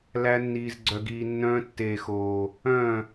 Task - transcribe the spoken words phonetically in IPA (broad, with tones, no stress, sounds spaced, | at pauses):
l æ˧ nː iː˨ z ɡ͡ǀ œ˨ ɡ iː˨ nː œ̃ː˧ tː eː˨ x oː˨ | œ̃˦˨